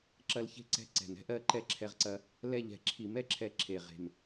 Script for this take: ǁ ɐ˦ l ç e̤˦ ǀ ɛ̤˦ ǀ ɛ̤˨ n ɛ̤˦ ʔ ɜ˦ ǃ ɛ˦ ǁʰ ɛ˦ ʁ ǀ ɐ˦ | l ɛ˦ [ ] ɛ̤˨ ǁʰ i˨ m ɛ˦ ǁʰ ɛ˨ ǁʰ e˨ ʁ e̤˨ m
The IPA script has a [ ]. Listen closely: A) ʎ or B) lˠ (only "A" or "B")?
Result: A